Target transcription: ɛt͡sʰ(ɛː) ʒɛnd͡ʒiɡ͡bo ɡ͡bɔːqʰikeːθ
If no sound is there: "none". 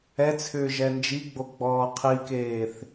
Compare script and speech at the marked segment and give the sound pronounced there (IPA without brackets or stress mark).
ʏː